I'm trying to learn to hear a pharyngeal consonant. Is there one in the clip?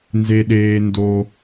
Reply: no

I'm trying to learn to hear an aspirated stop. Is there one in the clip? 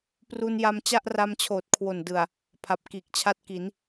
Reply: yes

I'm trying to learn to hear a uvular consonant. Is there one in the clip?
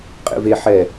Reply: yes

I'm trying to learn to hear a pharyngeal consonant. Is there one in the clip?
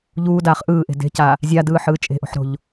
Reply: yes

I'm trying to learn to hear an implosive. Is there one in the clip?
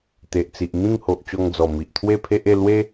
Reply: no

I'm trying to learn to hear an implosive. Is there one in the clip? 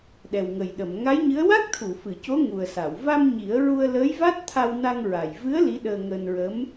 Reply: yes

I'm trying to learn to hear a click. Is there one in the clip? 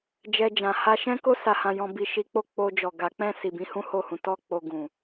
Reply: no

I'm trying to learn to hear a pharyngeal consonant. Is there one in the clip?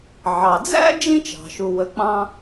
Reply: yes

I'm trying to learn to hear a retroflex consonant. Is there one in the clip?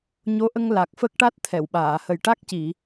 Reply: yes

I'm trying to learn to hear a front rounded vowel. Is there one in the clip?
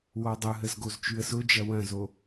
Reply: no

